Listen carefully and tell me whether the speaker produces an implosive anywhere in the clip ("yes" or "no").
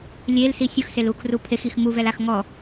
no